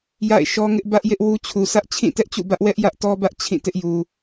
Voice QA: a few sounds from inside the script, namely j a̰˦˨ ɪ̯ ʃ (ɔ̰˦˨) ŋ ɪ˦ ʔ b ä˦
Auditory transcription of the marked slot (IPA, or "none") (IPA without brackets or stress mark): ɔ˦